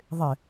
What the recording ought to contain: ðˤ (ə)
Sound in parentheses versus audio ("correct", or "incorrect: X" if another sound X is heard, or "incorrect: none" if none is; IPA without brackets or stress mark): incorrect: ɪ